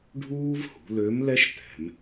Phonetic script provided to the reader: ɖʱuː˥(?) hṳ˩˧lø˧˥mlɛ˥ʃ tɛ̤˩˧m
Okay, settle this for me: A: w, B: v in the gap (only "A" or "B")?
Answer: B